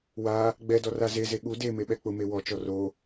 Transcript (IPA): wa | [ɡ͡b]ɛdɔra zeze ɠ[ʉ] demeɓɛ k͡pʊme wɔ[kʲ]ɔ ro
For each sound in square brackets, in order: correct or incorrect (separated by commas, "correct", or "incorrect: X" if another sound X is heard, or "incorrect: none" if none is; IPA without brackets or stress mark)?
correct, incorrect: u, incorrect: t͡ʃ